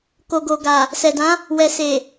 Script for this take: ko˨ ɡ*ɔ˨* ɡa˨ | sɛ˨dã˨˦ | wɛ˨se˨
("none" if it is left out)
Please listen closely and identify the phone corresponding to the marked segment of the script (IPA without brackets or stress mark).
o˨